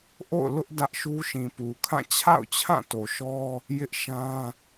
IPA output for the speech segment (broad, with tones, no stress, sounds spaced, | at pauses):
ʔ o̰˦˨ ʊ̯ l ʊ˦ ʔ d ä˦ ʔ ʃ u˦ ʃ ĩ˨ p u˨ kʰ ã˦˨ t͡ɕʰ a̰˦˨ ʊ̯ t͡ɕʰ ã˦˨ t o˨ ʃ ɔ˦ | j ɪ˦ ʔ ʃ ã˦